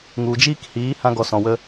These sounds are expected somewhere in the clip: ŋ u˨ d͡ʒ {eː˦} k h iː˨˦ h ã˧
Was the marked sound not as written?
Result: yes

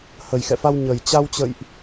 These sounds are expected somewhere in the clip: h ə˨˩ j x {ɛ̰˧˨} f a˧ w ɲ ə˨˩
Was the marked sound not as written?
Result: no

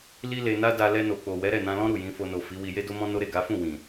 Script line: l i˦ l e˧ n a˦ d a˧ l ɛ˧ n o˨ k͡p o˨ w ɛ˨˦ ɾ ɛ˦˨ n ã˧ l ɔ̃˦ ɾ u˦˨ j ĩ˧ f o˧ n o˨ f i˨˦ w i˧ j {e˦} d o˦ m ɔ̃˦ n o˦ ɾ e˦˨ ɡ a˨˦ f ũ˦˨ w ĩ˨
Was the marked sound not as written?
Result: no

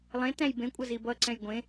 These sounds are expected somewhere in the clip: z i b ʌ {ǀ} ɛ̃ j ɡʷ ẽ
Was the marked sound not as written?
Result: no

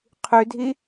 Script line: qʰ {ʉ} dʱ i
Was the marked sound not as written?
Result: no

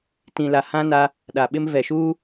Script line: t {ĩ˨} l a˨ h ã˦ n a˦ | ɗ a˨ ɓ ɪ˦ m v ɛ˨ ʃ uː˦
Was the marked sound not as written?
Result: no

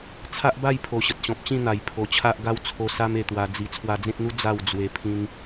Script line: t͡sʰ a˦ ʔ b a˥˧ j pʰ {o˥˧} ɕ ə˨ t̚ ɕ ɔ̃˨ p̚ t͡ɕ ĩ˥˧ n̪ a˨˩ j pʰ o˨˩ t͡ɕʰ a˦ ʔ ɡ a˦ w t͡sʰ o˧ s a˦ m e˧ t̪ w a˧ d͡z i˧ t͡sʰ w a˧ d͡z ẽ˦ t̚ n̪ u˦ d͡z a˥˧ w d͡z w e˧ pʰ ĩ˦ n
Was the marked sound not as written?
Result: yes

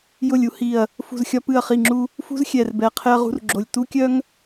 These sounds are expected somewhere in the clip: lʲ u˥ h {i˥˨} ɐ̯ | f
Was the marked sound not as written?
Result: yes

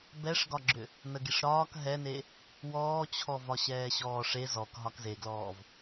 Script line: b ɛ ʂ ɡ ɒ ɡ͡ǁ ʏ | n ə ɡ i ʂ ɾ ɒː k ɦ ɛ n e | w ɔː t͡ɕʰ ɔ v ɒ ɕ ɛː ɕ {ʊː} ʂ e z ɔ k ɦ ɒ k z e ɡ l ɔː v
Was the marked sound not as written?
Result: yes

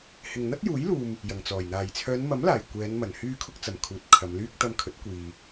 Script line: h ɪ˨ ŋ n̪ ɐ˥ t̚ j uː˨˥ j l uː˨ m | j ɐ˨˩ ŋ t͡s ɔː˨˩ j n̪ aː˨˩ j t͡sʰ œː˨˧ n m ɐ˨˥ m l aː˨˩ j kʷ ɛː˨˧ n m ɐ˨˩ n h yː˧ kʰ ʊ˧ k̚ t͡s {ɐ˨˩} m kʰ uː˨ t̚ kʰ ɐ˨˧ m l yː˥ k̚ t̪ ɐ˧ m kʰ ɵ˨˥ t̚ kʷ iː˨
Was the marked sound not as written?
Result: no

